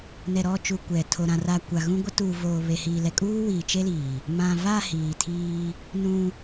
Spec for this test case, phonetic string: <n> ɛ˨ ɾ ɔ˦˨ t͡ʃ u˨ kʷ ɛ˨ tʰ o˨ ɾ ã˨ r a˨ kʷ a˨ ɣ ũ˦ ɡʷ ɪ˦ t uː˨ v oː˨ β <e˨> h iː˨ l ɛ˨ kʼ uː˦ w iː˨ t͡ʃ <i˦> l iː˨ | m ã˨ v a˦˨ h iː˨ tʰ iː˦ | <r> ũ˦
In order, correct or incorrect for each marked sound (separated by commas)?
correct, correct, incorrect, incorrect